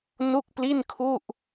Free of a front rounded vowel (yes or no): yes